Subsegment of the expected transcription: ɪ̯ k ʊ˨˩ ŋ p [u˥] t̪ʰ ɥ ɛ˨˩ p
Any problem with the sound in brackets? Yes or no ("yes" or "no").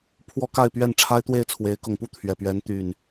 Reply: no